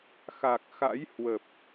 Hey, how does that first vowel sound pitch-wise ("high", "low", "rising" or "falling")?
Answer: low